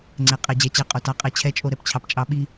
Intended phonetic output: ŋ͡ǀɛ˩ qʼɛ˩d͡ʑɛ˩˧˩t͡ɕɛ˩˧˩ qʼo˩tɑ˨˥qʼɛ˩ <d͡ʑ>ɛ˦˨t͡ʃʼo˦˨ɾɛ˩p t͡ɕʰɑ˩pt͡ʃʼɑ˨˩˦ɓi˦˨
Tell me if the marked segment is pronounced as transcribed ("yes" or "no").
no